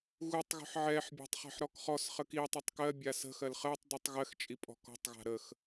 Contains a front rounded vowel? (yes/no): no